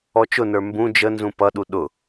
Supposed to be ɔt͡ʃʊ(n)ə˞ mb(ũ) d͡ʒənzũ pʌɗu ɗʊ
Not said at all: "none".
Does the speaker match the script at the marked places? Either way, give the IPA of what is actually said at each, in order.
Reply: n, ũ

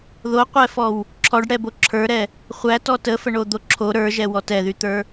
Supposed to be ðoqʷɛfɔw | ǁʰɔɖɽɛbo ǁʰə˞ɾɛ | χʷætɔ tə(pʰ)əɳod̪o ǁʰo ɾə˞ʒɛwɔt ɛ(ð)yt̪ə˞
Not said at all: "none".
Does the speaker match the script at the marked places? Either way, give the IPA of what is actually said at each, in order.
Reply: f, ð

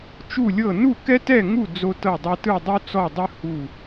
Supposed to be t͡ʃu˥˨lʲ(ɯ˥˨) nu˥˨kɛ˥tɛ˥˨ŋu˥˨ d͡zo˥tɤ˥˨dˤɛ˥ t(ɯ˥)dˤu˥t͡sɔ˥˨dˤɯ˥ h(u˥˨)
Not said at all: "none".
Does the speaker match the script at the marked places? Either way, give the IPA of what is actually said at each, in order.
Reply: ɤ˥˨, ɯ˥˨, u˥˨

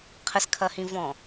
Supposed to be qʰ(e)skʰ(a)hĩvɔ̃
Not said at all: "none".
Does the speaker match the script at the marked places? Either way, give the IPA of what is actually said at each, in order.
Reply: ɘ, ɐ

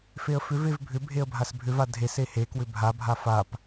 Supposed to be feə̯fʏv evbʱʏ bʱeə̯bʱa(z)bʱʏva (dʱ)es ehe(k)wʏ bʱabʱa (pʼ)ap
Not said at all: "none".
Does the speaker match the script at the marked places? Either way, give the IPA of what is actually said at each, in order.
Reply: s, dʱ, k, f

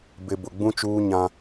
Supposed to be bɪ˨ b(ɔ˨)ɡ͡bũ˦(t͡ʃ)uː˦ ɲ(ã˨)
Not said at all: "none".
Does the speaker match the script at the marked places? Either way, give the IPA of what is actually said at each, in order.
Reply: ʊ˨, t͡ʃ, ã˦

